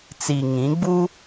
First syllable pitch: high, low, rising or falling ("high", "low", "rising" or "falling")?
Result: low